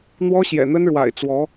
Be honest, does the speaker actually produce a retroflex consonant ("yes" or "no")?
yes